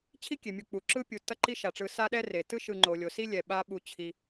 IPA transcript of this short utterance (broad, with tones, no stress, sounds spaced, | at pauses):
t͡ɕʰ i˥ kʲ e˩ mʲ u˨ k͡p u˩ ǁ ɯ˥ pʲ u˨ t ʌ˦ ǃ i˦ ʃ a˩ ʈ͡ʂ ɯ˨ s a˥ ɗ ɛ˥ r e˩ t ɯ˥ ʃ ɯ˨ ŋ͡ǃ o˩ lʲ o˩ s i˥ lʲ ɛ˩ ɓ a˨ ɓ u˩ t͡ɕʰ i˩